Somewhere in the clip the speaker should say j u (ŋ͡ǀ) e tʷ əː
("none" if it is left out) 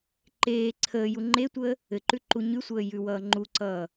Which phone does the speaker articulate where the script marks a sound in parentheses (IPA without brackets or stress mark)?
ŋ͡ǃ